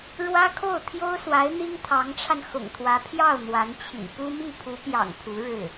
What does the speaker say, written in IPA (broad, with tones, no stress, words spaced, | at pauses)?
ɻwä˥kʰo˥˩ʊ̯ t̪ʰjo˥ʊ̯swa˧˥ɪ̯ n̪i˥ŋt̪ʰɑ˧˥ŋʈ͡ʂʰa˧n xʊ̰˨˩ŋt̪ʰwä˧˥ pʰjɑ˥˩ʊ̯ n̪wa˧˥nt͡ɕʰḭ˨˩ pu˥ mi˥˩pʰu˧˥pjɑ̰˨˩ŋ pʰu˧˥ɻɻ̩˥˩